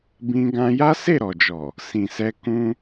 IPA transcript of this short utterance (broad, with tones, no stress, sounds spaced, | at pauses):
b ĩ˦ ɡ ã˦ j a˦ s e˦˨ ɾ ɔ˨ d͡ʒ ɔ˨ | s ĩ˨ s ɛ˧ k ũ˧